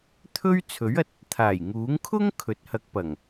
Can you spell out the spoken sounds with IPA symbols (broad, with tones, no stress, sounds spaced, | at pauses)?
t̪ʰ ɵ˥ ɥ t͡sʰ ɵ˨˥ ɥ ɐ˨ t̚ | t̪ʰ aː˨˩ j ŋ uː˨˥ ŋ kʰ ʊ˥ ŋ kʰ ɵ˨˥ t̚ h ɐ˧ k̚ p ɐ˨˩ ŋ